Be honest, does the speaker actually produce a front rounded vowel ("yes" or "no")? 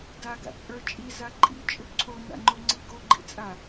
yes